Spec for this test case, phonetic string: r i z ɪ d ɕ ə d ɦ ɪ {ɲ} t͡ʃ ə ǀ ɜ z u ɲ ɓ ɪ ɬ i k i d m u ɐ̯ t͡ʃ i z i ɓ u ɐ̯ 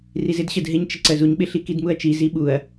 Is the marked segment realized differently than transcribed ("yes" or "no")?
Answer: no